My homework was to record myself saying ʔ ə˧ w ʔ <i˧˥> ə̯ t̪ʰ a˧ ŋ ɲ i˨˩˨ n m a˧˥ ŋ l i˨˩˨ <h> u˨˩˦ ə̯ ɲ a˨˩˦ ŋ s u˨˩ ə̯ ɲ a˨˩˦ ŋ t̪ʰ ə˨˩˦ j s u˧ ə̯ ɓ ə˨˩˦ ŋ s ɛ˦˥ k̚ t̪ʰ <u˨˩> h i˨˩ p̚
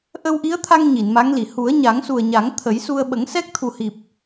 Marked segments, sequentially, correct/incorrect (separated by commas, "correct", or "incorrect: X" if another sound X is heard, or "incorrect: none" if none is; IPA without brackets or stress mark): correct, correct, correct